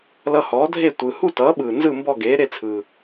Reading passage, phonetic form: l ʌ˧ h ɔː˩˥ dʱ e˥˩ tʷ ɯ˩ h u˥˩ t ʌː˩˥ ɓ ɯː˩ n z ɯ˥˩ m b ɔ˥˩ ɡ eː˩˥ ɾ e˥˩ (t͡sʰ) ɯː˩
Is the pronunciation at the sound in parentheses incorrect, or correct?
correct